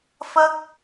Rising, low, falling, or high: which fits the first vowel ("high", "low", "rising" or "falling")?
high